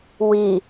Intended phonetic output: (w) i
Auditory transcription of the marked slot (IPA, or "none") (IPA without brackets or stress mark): w